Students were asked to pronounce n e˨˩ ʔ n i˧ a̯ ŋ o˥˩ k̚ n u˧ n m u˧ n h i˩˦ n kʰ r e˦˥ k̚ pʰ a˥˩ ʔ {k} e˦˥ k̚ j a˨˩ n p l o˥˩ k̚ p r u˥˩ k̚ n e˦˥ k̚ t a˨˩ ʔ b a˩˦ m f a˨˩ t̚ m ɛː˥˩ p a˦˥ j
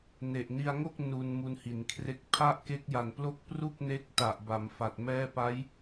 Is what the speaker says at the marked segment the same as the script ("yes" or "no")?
yes